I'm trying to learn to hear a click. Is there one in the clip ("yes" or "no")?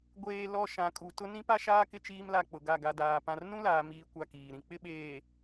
no